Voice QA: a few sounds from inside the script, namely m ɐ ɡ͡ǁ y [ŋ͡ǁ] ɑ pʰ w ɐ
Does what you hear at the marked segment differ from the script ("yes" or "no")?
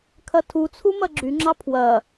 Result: no